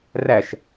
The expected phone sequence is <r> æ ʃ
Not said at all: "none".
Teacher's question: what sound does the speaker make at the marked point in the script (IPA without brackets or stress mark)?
r